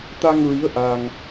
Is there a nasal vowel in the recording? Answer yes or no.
no